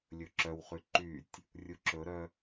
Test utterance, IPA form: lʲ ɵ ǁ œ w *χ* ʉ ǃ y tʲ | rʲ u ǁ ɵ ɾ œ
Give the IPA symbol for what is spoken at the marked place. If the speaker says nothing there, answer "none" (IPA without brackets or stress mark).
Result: χ